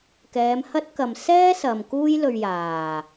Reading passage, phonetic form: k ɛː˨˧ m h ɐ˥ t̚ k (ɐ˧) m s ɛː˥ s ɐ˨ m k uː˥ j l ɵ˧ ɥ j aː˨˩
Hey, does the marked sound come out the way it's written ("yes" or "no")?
yes